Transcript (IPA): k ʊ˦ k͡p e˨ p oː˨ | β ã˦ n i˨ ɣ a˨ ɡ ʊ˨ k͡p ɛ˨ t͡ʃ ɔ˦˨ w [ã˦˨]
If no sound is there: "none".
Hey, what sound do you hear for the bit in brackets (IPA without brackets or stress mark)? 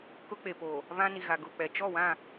ã˦˨